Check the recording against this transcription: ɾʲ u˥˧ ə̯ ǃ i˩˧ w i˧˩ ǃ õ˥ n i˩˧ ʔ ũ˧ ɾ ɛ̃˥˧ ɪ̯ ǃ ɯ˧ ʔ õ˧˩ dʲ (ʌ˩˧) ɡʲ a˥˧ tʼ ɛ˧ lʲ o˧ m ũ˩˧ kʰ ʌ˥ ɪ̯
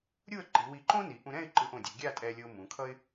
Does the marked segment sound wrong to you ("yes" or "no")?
no